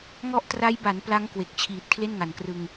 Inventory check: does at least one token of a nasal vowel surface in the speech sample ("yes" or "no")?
no